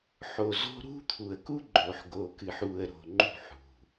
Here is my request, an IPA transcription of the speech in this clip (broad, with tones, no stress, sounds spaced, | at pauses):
ħ o˨ z o̤˦ ɾ ṳ˦ t̪ʰ u˨ ə̯ k u˦ ɡ͡ǃ o˨ ħ ɡ o˨ k ɨ˨ ħ u˨ ə̯ ɾ o̤˨ ŋ͡ǃ ṳ˦˨ ħ ṳ˨